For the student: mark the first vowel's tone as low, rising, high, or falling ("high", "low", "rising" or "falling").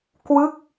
falling